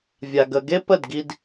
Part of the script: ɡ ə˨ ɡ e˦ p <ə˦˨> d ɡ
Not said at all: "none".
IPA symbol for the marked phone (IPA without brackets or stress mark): ə˦˨